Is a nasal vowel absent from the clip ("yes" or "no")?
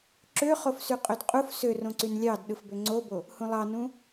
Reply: no